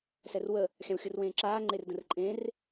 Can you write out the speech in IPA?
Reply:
sɛrwə | xʲãwxʲɯrwẽːǁaː ŋ͡ǃerdə̃rǃʼẽr

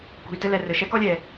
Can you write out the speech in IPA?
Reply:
kṳ˩y̯tɘ˥lɛ˩rɘ˩ ʃɛ˥kɔ˥lʲɛ˩

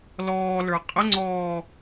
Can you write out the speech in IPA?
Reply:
lɔːlə˞ qʼəŋ͡ǀɔː

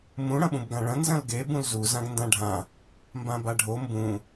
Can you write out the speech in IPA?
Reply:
mũ ɽɐ̃ɓũbɡãɭɐ̃ nzɐ̃lɡe bũlzu zãɡndãɖʱã | mbãbaɖʱo mbũ

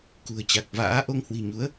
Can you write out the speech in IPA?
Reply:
kṳ˨˩ə̯t͡ɕa˨˩k̚va̰ː˧˥ʔo˧ŋ hwi̤˨˩ɲu˨˦ə̯

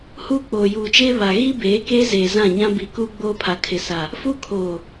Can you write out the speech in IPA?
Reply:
huː˦k͡poː˨juː˨t͡ʃeː˦ βa˨ ɣi˦ beː˨˦keː˦zeː˨ zã˦˨ɲã˦bi˨ kuː˦ɡ͡boː˦pʰa˨ kʰɪ˨sa˨ | fu˦kʰoː˨

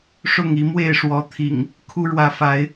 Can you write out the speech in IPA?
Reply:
ʂʊ˥˨ŋi˨˦mwe˥˨ɪ̯ ʂwɔ˨˦ t̪ʰḭ˨˩ŋ | kʰu˦ ɻwä˨˦fa˨˦ɪ̯

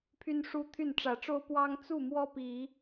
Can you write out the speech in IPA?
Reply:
pʰy˦nʂu˦t̪ʰy˥˨n ʈ͡ʂä˨˦ʈ͡ʂo˦ʊ̯ pwɑ˦ŋ t͡su˥˨mwɔ˦ pi˨˦

